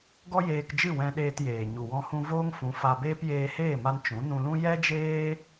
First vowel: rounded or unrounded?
rounded